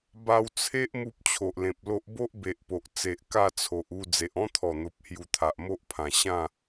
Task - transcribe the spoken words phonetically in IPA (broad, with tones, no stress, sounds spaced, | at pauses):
b a˧ w t͡sʰ e˦ ʔ m u˦ p̚ t͡ɕʰ o˨ ʔ l ẽ˨ p̚ l o˦ ʔ b o˦ ʔ b e˨ ʔ p o˨ ʔ t͡s e˨ ʔ k a˥˧ t͡sʰ o˨ ʔ u˥˧ d͡z e˨ ʔ ɔ̃˦ t̪ʰ ɔ˨˩ n̪ o˨ p̚ h j u˧ t̪ʰ a˨ ʔ m o˦ ʔ pʰ ã˨˩ ɕ ã˥˧